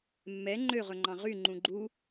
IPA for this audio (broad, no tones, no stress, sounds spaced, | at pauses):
mː ɛ ŋ͡ǃ ø ʁ ɵ ŋ͡ǃ ɑ̃ ʁ y ŋ͡ǃ ũ ɡ͡ǃ u